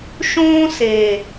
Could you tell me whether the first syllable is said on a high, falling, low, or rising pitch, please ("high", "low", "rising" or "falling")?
high